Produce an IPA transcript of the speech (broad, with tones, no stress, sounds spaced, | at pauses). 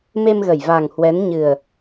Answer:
m e˧ m ɣ ə˧˩ j v aː˨˩ ŋ h w ɛ˨˦ n ɲ ɨ˨˩ ə̯